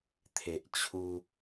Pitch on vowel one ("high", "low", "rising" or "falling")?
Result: low